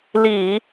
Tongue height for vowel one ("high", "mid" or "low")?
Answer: high